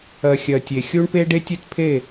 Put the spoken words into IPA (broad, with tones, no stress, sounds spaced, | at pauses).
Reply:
ɜ˨ xʲ ɜ˨ tʲ e˨ xʲ u˦ ɳ p e˦ ɖ e˦ tʲ ø˦ t pʰ e˦˨